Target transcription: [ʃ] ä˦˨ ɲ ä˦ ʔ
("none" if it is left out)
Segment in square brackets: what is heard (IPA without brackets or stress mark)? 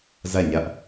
z